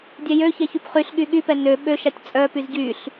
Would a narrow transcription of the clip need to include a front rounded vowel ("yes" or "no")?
yes